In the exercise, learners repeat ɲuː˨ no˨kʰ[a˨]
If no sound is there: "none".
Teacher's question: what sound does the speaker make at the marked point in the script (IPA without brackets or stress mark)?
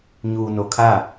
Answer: a˦˨